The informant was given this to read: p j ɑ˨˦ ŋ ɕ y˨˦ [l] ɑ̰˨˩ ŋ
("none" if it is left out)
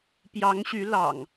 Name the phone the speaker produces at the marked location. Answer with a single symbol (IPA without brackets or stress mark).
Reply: l